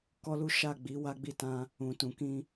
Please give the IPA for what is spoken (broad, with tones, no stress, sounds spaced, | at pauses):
k ɔ˦ l u˦ ʃ a˦˨ ɡ͡b i˨˦ w a˦ ɡ͡b i˦˨ t ã˧ | ũ˨ t ũ˨ k ĩ˧